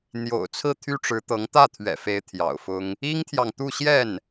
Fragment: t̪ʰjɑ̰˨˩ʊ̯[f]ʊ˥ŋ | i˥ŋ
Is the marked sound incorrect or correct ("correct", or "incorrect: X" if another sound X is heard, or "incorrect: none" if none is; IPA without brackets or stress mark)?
correct